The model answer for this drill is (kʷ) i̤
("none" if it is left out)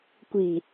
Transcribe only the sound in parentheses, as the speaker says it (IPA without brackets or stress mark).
kʷ